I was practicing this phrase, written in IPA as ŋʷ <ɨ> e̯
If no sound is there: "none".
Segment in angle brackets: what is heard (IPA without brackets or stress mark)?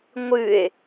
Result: ɨ